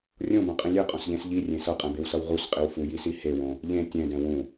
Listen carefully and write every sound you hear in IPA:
rʲõbõqʼĩ lʲeqʼõsʎẽs ʎirʲẽ sʌqʼɛ̃bewsʌw ʁusqʼiw fujisi hewõ | ʎẽ tʲɛ̃dɛ̃ wũ

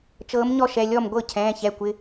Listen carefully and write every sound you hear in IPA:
t͡ʃɤː˨˥mɲɔ˥˩ʃɛ˩˧˩ lʲɔ˥˩mɡʷɤ˥˩ cʰɛ̃ː˩˧˩çɛ˩˧˩kʷɪ˩˧˩

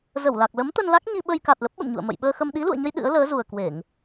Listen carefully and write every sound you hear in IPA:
zə˧˩wla˨˩k̚ lə˨˦mt̪ə˧nla˦˥k̚ ɲi˧ɓə˧jka˨˩t̚ lə˦˥p̚ɓə̰˧˨mɲṵ˧˨ə̯ mə̰˧˨jɓəː˧xə˧m ɗi˨˦lṵ˧˨ə̯ɲə˧j ɗɨ̰˧˥ə̯ləː˨˦zu˨˩ə̯kwe˧˩˨ŋ

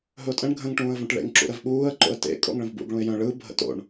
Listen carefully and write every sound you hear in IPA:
ɦɵʊ̯tʼə̃ɳ ɡʱə̃ŋ ʈũːə̯võʈɭḛŋ ǁṵɾɜvɓuːə̯ ǃo̰ə̯tḛ kʼo̰ŋɭə̃vbṵɡ ɭũɪ̯jœ̃ ɭɯ bʱə̰to̰ɳ

